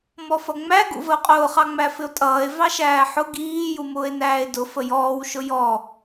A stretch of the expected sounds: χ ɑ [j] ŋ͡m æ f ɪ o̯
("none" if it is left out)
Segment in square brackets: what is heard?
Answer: none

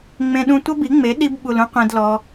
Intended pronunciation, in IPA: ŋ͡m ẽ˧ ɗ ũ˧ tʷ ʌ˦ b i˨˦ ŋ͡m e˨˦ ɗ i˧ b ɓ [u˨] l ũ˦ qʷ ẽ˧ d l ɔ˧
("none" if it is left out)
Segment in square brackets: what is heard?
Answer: u˨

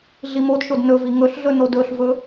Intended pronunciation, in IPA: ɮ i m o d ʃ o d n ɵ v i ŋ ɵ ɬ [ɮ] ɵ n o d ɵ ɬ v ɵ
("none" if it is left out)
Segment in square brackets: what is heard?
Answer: ɮ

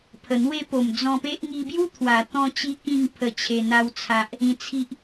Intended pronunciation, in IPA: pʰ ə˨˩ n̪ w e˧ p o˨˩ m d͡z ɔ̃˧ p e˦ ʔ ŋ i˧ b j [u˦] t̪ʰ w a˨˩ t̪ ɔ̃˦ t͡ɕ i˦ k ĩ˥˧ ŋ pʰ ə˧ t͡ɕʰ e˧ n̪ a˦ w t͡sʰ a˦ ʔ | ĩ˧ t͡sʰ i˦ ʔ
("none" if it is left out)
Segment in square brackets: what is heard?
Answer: u˦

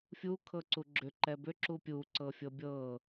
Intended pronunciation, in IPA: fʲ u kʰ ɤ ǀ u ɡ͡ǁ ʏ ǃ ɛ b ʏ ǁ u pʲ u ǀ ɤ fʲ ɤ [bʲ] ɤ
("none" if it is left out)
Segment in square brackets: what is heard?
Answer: bʲ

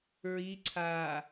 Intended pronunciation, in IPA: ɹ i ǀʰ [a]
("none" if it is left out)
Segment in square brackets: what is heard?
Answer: aː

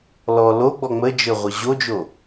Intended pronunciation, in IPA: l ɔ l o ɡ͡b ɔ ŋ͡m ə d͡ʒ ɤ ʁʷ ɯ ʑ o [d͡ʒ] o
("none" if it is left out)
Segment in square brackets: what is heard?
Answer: d͡ʒ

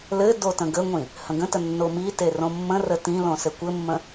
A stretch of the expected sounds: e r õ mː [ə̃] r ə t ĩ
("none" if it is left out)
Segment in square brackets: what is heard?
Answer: ə̃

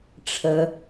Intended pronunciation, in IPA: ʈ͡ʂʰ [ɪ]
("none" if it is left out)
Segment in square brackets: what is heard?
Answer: ə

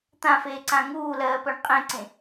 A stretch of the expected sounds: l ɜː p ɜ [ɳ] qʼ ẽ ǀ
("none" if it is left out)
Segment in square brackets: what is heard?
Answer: ɳ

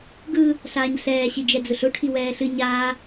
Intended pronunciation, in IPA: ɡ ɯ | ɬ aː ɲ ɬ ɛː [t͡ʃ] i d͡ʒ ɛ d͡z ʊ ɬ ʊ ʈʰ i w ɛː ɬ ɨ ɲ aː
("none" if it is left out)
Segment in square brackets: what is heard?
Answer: ɕ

